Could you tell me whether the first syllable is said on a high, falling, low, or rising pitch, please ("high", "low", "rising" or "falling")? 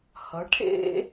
rising